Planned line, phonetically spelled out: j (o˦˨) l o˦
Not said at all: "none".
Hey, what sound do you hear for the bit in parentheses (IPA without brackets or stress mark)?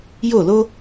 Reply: o˦˨